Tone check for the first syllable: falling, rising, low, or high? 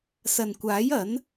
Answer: low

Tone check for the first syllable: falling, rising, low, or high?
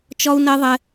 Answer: high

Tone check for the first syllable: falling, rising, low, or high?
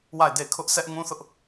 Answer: falling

